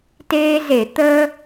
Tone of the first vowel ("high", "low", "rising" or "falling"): high